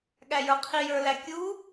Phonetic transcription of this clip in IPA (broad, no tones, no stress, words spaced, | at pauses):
ɠæjə˞qʰi jə˞lækʲu